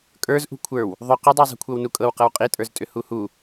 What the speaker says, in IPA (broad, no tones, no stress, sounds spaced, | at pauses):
kʼ ə˞ z ʔ ṳ kʷʰ ə˞ w | ðˤ ʏ q u dˤ u zˤ i̤ kʷʰ ɤ w n u kʼ ɤ w q ɤ w qʼ i tʼ ə˞ z tʼ ʏ h u h u